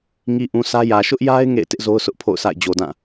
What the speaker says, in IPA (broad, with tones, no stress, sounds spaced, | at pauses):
ŋ i˨ ʔ ũ˨ sʰ ä˦ j ä˨ ʃ ʊ˦ ʔ j a˦ ɪ̯ ŋ ḛ˦˨ ɪ̯ t ɪ˦ ʔ z o˦ ʊ̯ s ʊ˦ ʔ pʰ o̰˦˨ ʊ̯ s a̰˦˨ ɪ̯ d͡ʑ o˨ d ã˦˨